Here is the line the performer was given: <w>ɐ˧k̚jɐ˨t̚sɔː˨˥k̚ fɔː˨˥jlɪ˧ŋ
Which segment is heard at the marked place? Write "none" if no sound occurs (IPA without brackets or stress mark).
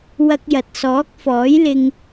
w